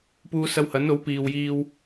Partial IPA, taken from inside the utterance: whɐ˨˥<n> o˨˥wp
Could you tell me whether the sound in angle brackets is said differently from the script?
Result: no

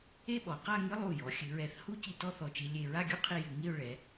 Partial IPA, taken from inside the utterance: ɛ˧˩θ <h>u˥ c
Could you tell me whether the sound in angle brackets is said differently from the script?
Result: no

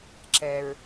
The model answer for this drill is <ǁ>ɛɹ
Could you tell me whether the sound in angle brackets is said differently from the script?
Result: no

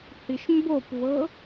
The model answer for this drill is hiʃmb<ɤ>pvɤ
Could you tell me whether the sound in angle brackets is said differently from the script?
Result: yes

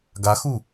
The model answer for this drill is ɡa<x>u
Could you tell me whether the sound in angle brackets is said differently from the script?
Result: no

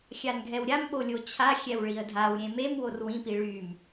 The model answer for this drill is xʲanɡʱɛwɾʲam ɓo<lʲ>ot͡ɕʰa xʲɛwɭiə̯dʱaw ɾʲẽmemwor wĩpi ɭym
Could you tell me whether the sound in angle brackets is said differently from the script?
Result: no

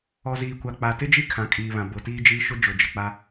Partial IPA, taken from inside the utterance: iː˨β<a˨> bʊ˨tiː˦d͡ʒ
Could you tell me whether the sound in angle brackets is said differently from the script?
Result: yes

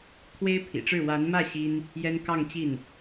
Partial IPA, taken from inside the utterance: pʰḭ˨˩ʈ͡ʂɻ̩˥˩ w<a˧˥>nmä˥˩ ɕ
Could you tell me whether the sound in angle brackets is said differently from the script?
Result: no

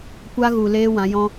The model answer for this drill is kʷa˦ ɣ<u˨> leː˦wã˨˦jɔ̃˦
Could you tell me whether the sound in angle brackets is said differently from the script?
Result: no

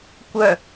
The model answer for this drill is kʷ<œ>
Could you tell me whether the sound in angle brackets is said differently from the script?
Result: no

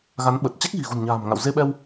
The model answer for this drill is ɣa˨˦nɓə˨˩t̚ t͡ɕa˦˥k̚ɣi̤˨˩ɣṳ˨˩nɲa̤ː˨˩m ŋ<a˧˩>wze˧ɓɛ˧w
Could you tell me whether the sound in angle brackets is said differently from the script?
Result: yes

